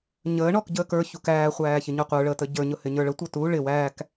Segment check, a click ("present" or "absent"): absent